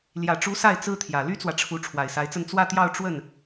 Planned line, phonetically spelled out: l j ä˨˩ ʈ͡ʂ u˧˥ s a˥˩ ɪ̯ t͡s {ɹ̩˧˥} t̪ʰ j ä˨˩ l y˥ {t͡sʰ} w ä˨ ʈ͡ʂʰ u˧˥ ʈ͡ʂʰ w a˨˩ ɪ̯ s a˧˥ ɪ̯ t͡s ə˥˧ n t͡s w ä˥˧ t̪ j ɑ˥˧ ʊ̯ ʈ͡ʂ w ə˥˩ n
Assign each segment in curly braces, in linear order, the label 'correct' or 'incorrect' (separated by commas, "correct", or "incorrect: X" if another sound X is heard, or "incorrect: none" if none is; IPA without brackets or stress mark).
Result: incorrect: ɹ̩˥, incorrect: t͡s